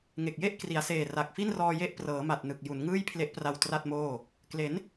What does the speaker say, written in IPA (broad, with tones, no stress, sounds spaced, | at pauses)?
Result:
ŋ e˨˩ k̚ j e˥˩ ʔ k r i˩˦ a̯ s eː˨˩ r a˨˩ k̚ f i˥˩ n r ɔː˧ j e˦˥ ʔ p r ɤː˩˦ m a˨˩ t̚ n ɯ˨˩ k̚ j u˩˦ n ŋ ɯː˥˩ j pʰ l e˦˥ ʔ p r a˧ w t r a˥˩ t̚ m oː˥˩ | k l e˩˦ n